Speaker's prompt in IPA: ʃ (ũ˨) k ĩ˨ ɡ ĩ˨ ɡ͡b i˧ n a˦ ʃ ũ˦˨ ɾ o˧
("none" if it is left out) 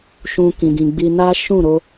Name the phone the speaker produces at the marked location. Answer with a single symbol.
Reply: ũ˧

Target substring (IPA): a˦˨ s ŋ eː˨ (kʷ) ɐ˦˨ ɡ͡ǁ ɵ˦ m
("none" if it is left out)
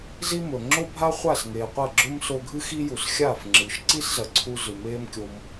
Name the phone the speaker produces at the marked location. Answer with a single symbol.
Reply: qʷ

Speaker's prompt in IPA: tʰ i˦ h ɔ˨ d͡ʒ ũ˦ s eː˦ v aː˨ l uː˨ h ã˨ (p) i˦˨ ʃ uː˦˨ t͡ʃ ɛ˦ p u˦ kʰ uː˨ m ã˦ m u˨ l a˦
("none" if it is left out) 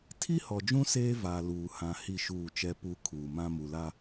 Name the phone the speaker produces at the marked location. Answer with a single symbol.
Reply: h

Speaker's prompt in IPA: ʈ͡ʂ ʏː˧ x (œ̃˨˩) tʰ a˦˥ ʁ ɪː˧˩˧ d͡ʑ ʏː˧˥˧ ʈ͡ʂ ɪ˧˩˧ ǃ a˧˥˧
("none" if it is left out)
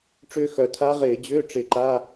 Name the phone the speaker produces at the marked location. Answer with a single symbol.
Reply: œ˨˩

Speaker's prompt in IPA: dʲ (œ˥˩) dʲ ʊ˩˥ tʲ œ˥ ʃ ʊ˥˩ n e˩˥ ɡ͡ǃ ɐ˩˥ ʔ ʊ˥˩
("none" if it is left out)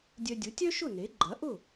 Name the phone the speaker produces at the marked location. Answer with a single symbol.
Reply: œ˧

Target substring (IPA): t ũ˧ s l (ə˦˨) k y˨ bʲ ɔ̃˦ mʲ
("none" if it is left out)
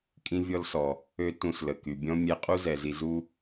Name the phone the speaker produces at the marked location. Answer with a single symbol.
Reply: ə˨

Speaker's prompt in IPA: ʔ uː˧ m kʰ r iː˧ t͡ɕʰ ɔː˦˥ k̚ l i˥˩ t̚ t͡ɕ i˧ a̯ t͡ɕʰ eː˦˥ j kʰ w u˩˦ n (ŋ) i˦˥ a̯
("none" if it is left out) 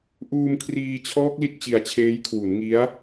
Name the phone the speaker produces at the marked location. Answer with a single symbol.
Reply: ŋ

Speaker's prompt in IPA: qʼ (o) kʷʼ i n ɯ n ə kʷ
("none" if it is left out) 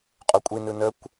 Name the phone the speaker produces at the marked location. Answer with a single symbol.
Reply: o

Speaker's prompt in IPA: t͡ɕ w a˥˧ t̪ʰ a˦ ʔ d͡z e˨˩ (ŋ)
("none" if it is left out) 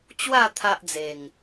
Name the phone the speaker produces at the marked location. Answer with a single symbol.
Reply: ŋ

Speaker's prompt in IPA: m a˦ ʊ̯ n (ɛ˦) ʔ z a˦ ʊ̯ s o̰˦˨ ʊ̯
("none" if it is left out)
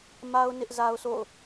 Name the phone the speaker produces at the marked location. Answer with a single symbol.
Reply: ɪ˦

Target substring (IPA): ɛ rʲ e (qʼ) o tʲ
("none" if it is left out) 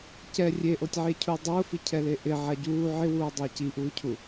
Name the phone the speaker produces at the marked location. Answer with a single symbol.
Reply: ʔ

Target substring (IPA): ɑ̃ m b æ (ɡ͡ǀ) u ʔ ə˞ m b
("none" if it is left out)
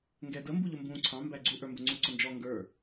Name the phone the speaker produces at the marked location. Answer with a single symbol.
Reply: ɡ͡ǀ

